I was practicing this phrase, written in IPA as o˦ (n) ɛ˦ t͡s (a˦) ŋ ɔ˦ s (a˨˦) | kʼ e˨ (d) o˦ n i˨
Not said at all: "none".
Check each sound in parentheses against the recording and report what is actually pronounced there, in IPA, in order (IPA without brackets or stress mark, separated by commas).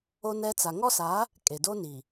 n, a˨, a˨˦, d